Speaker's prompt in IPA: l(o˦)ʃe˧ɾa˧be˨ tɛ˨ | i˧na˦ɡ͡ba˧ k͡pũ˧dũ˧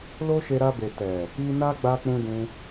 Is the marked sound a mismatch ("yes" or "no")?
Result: no